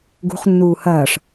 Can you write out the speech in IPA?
ɡ ṳ χ nː uː h ɐː ʂ

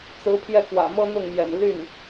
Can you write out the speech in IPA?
t͡s ɹ̩˧˥ pʰ j ɛ˥˩ k w ä̰˨˩ m ɤ˥ n̪ ʊ˥˩ ŋ m j ɛ̰˨˩ n l y˥˩ n

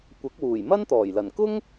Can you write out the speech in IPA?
kʷ ɐ˨˥ k̚ w uː˨˩ j m ɐ˥ n t̪ ɔː˨˩ j l ɐ˨˩ n k ʊ˥ ŋ

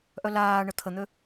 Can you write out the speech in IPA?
ʔ œ l aː ɳ ə t̪ʰ ə n̪ ø

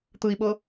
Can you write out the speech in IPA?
t̪ ɯ i̯ ɓ ɤ

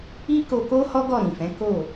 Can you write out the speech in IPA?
i˦ k o˧ k o˦ h ɔ˦ ɡ ɔ˦˨ ɾ ĩ˨ f ɛ̃˨˦ k o˦˨

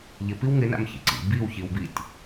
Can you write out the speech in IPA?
ʎ ɪ p i w ŋ ɪ n a̰ m ç ḭ ǀ ḭ b i w ç i w b i tʲ

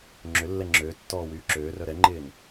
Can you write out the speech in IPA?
ŋ͡ǁ ʏ lː ɛ ŋ͡ǁ øː tː ɔː w yː ǁ øː r œ ɾ ɛ ŋ͡ǃ ɪː n

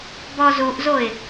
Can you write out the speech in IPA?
b ɔ z u ʔ z o ɪ̯

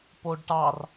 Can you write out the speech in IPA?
p o ɖ ʈ ɑ r

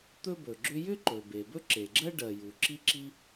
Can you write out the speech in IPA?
t̪ ɵ˥ b ɵ˩ ɡ͡ǁ ʏ˥ j ʏ˥ ǃ ɵ˩ b e˩ b ɵ˥ ǁ e˩ ɡ͡ǁ ɜ˥ ɖ ɜ˩ j u˩ ǁ i˥ ǁ i˥

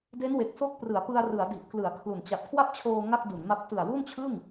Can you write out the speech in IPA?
d e˦˥ n w e˨˩ k̚ s o˥˩ k̚ p r ɯ˩˦ a̯ p ɯ˧ a̯ r ɯ˩˦ a̯ d i˨˩ ʔ k l ɯ˩˦ a̯ kʰ l u˨˩ n t͡ɕ a˨˩ t̚ kʰ w a˥˩ p̚ t͡ɕʰ oː˧ ŋ a˥˩ k̚ d u˩˦ n m a˦˥ p̚ t ɯ˨˩ a̯ w u˥˩ n t͡ɕʰ ɯ˥˩ ŋ

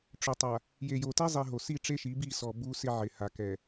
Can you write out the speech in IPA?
ʈ͡ʂ ʊ˨ tˤ a˨ | j e˨ j o˨ t ɛ˦ zˤ i˨ ɦ o˨ s i˦˨ ʈ͡ʂ e˦ ʃ i˨˦ b i˦˨ s ɔ˨ b u˦ s ɪ˦ ʕ ɪ˨ h a˨ k ɛ˨

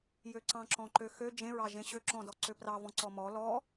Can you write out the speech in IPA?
j ø ǀ ɑ̃ ǁ ɔ̃ ǃ ø x ø d͡ʒ ẽ ɹ ɑ ʒ ẽ ɕ ø ǁ ɔ̃ d ɔ ǀ ø p r ɑ v ɔ̃ ǀ ɔ m ɔ l ɔ

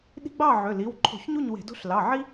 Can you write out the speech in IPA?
ɗ i̤˦ ɡ͡b ɑ˥˨ ʕ ø˩˧˩ l i˩˧˩ w ǃʰ o̤˧˩˧ ç ɲ u˥˨ ɲ w e̤˧˩˧ d o̤˦ ɬ l ɑ˩˧˩ ʕ i˦

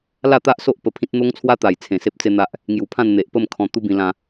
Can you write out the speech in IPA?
l a˥˧ t̪ a˦ ʔ s o˦ ʔ p ə˧ pʰ ĩ˦ t̚ n̪ o˦ ŋ t͡sʰ w a˦ t̪ a˨˩ j t͡sʰ ẽ˨˩ s e˦ p̚ t͡s e˦ n̪ a˦ ʔ | ŋ j u˨˩ pʰ ã˥˧ n n̪ e˨ ʔ p ə˥˧ m kʰ ɔ̃˧ t̪ u˦ b ĩ˧ l ã˧

